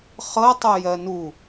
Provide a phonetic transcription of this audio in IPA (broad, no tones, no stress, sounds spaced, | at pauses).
χ ɤ tˤ ɤ j ɜ n u